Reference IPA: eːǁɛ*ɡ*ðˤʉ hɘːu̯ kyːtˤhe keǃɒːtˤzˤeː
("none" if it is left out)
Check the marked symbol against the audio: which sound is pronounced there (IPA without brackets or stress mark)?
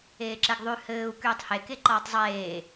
ɡ